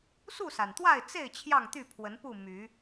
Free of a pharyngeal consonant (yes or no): yes